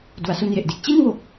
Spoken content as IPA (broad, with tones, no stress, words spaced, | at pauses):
du˩˦a̯su˧nje˨˩ʔde˨˩k̚ t͡ɕi˥˩nwo˨˩k̚